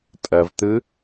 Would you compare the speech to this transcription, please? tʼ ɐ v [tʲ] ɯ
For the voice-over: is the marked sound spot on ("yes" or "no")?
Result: no